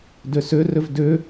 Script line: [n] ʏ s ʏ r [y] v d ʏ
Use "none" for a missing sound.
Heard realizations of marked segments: d, ʏ

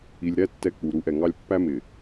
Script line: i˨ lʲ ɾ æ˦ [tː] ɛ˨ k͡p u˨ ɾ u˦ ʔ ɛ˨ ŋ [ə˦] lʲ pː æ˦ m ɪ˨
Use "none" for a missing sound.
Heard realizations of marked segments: tː, ɑ˦

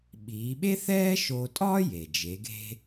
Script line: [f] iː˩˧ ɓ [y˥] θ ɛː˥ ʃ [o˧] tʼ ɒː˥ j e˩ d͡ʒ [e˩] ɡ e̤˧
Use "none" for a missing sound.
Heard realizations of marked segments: ɓ, e˥, o˧, e˩˧

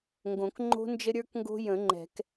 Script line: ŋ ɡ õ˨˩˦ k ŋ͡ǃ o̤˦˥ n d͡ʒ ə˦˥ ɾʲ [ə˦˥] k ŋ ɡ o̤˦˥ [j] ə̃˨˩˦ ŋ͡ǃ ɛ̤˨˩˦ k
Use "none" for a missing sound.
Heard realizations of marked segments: ə˞˦˥, j

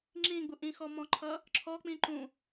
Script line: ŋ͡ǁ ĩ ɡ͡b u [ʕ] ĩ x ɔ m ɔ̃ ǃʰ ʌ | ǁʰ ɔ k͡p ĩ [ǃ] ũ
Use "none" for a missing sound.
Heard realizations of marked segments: ʔ, ǃ

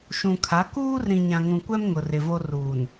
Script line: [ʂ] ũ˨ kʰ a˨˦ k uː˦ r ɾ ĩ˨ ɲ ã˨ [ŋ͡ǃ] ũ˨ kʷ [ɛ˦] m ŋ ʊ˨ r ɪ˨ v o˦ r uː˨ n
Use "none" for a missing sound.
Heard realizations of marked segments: ʃ, ŋ, ɛ˦

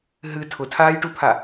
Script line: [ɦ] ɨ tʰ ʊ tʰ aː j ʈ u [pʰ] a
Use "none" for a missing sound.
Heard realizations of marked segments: ɦ, pʰ

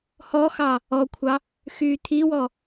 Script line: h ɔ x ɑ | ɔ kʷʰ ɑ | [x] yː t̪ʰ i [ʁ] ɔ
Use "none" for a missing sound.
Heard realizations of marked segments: x, w

